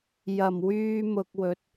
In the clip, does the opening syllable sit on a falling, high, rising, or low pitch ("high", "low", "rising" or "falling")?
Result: low